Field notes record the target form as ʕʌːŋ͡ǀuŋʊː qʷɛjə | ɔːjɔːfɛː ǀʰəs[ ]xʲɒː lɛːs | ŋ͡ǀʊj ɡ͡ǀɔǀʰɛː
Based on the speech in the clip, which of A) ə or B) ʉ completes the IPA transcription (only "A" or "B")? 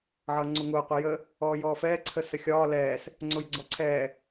A